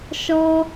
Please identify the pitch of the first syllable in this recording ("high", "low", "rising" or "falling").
high